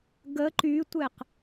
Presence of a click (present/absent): present